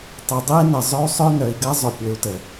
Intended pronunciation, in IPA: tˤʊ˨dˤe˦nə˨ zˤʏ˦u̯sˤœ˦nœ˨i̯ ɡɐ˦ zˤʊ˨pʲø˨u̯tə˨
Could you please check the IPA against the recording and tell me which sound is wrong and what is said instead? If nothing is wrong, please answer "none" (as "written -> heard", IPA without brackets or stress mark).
none